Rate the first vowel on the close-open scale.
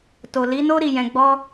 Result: mid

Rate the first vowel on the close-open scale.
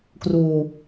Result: close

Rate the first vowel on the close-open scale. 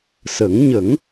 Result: mid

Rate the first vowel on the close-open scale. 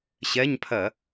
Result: mid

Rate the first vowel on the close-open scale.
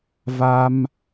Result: open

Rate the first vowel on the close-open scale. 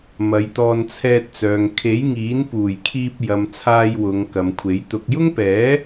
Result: open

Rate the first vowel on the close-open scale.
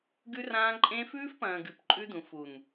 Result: close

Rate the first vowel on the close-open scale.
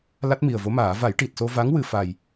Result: open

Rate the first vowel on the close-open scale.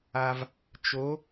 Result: open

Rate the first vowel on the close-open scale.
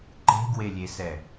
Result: mid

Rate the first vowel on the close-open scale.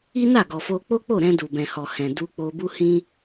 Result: close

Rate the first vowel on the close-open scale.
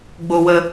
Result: mid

